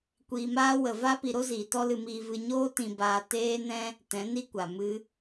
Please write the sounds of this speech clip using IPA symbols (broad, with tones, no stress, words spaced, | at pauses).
kʷiː˧maː˦ wə˨va˦ pi˧ɾo˦ziː˨ tɔ˦lɨ˧miː˧ vɨ˧ɲoː˦ tĩ˧baː˧ teː˦nɛ̃˦ | tɛ̃˨˦ni˦kʷa˨ mɨ˧